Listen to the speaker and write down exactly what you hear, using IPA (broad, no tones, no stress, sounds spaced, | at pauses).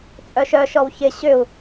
t͡sʼ œ ʃ œ ʃ ɔ w ç ɪ ɕ ʏ u̯